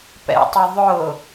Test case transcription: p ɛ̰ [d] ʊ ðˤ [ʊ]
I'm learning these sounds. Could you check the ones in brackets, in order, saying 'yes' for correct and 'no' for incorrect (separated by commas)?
no, yes